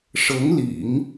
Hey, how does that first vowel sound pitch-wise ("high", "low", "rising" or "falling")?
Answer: rising